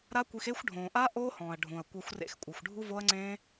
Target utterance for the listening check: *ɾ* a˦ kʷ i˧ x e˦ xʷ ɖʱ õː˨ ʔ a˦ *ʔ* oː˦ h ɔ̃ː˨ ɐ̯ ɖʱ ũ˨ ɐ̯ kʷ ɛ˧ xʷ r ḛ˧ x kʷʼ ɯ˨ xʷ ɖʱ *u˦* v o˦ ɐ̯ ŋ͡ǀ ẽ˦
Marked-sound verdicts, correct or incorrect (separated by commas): correct, correct, correct